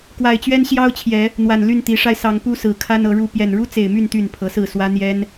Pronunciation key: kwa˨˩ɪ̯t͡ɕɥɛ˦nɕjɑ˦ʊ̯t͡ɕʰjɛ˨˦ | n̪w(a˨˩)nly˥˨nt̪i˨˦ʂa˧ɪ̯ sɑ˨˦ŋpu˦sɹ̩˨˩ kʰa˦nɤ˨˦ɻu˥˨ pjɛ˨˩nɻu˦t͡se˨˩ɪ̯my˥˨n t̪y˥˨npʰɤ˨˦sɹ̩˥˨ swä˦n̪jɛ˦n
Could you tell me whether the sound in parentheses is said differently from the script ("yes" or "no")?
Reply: no